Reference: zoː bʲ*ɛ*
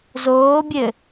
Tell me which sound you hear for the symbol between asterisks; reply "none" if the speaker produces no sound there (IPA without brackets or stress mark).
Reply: ɘ